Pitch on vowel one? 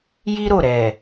high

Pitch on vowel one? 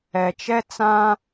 low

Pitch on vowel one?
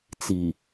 low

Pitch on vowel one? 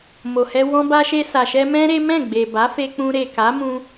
low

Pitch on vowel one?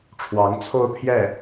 rising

